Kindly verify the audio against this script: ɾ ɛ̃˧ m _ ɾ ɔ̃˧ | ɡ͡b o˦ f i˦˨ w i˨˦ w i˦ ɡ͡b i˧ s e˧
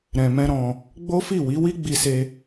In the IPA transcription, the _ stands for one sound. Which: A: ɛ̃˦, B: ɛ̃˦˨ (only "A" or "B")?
A